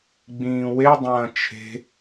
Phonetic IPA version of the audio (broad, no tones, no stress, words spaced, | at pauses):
ɡ͡bĩːwedˤɐ̃ː t͡ʃʰe̤